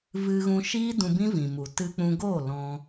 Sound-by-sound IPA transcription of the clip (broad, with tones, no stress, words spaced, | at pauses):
vɨ˧ɣũ˧ ʃiː˦dũ˧ bĩ˦vĩ˨mu˨ tɨ˧k͡pũ˧ɡoː˦˨ lɔ̃˧